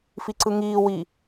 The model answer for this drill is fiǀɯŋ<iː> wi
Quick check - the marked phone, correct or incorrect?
correct